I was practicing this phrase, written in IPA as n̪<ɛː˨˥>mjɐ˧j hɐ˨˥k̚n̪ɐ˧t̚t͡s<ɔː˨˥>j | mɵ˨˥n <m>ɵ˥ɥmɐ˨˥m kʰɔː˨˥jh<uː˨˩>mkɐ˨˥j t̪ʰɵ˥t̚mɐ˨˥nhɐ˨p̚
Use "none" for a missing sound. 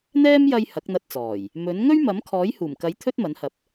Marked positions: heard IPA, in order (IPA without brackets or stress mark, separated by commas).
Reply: ɛː˥, ɔː˨˩, ŋ, uː˨˩